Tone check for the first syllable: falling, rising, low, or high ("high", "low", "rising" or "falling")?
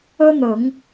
high